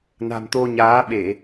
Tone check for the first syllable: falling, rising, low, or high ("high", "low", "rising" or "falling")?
low